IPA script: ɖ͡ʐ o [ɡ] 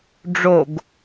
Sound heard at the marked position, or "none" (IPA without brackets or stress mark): ɡ